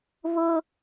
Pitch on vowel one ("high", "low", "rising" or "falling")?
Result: high